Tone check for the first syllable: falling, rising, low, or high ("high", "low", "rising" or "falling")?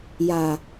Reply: low